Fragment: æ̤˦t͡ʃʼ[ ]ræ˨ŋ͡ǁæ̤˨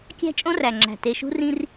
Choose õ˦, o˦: õ˦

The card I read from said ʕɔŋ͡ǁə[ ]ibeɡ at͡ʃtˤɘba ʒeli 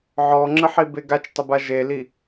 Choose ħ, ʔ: ħ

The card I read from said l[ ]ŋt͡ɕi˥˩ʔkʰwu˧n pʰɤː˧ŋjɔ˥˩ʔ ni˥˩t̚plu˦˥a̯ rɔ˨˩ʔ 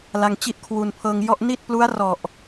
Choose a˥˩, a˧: a˧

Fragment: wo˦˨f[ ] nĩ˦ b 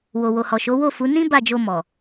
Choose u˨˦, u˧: u˨˦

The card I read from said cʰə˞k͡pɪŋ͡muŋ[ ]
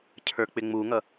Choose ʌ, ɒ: ʌ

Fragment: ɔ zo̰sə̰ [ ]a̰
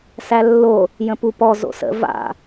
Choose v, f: v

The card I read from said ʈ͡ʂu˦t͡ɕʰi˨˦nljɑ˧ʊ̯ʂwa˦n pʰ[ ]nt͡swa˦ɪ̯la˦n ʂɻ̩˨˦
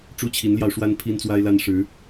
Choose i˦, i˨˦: i˦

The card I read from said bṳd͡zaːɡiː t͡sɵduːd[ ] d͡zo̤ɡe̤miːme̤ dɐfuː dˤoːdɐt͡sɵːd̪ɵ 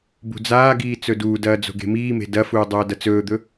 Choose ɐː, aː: ɐː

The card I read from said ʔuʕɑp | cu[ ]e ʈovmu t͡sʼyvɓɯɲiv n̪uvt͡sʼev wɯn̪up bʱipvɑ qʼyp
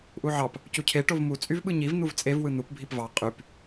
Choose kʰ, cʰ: cʰ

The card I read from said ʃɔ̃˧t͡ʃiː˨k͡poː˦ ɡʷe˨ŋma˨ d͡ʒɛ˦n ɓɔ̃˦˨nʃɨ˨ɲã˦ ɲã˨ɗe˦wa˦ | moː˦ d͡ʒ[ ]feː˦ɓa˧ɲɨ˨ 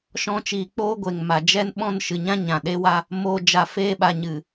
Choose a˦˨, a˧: a˧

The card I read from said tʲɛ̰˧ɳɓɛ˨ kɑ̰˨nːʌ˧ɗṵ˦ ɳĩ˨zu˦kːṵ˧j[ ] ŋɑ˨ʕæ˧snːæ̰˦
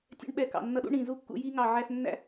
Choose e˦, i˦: i˦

